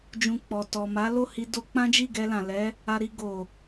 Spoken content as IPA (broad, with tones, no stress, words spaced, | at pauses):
d͡ʒũ˧k͡pɔ˨ tɔ˨ma˨˦lo˦˨ hi˧ do˧k͡pã˦d͡ʒi˦˨ ɡɛ˧lã˨ lɛ˨˦ | a˧ɾi˧ ɡo˨